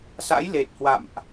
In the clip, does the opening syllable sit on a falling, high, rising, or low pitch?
rising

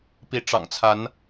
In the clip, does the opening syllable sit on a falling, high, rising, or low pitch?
rising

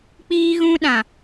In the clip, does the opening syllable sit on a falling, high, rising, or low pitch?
high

